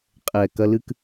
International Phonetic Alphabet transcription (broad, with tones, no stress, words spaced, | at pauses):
qʼɛ˨ kɐ˧lɨ˦k